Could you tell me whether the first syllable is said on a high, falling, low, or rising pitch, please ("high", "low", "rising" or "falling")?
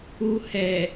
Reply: low